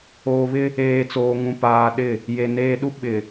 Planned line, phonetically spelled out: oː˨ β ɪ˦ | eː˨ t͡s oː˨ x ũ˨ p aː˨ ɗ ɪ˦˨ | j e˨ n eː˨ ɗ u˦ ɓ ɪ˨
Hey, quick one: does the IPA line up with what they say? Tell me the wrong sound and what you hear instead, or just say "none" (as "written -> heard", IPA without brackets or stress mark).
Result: x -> ŋ